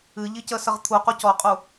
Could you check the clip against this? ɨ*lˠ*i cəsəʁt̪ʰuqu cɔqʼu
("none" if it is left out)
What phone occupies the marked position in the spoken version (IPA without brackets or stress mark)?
ʎ